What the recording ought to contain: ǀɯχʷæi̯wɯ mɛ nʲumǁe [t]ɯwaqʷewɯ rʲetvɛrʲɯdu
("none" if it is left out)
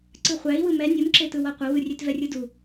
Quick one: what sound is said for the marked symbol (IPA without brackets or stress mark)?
t